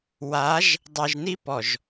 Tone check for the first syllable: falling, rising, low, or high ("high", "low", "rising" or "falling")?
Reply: rising